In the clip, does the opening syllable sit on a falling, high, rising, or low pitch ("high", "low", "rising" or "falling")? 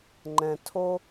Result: low